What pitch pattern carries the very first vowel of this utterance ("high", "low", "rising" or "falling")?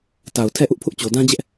low